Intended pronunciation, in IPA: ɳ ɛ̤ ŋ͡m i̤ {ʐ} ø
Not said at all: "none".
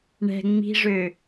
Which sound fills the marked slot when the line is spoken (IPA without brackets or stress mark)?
ʐ